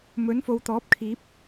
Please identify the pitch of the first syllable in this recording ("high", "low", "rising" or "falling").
rising